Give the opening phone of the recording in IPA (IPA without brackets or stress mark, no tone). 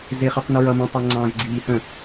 z